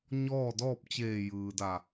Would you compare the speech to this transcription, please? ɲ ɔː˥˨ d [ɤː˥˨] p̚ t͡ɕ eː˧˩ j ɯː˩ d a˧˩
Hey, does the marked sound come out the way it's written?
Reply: no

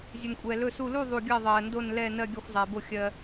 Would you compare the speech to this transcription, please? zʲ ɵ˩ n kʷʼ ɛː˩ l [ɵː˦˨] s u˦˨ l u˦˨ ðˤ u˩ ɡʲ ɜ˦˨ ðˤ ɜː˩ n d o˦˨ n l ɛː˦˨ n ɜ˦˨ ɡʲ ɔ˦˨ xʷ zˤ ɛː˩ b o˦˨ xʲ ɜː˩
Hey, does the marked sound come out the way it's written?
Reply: no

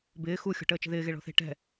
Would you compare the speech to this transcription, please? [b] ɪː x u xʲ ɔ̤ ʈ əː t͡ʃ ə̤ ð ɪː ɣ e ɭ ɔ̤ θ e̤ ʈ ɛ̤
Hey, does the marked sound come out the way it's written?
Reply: yes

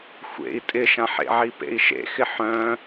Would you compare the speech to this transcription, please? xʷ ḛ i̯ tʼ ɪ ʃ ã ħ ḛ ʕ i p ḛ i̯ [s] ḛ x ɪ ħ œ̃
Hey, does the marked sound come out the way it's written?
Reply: no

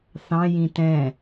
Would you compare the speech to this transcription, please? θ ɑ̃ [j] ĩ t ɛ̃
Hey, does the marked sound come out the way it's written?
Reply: yes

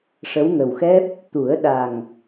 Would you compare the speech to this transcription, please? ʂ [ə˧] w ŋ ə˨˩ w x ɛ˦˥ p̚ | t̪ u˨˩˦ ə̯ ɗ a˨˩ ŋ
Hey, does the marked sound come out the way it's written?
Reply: no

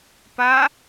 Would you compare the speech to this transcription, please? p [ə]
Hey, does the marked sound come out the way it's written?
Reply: no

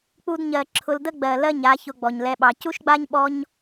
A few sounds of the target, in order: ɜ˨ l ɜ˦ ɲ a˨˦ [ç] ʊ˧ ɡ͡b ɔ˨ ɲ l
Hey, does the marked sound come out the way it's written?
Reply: yes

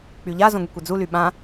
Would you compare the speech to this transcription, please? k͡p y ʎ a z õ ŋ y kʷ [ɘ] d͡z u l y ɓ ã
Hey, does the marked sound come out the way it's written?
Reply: yes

